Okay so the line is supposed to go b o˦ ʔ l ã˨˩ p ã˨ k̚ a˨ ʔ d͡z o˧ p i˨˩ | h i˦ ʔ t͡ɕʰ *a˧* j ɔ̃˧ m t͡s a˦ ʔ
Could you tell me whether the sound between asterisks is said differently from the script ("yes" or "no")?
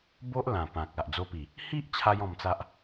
no